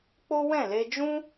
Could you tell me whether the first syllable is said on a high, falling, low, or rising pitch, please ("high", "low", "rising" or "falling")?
high